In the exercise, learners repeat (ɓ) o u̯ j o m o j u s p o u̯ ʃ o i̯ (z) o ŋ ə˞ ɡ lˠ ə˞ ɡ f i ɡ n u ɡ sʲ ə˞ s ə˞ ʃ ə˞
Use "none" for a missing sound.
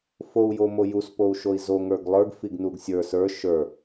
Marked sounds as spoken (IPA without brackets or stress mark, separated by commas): f, z